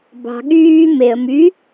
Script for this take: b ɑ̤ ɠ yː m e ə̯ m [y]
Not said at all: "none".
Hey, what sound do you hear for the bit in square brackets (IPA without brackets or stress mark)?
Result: y